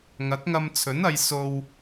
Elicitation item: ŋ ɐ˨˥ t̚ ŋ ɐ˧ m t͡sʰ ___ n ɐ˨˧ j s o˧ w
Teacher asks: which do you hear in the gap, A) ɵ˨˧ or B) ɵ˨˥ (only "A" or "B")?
B